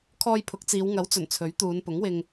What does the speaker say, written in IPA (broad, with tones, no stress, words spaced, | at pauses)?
kʰɔː˧jpʰʊ˨˥k̚t͡siː˨˧w ŋɐ˨˥wt͡sɵ˨˩n t͡sʰɵ˨˥ɥt̪uː˨˧n pʊ˨˥ŋwɪ˧ŋ